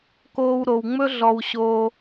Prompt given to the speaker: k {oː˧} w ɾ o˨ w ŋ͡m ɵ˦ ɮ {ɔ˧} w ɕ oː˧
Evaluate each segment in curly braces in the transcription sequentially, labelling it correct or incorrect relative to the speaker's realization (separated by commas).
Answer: correct, correct